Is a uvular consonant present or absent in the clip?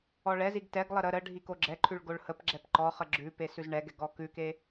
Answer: present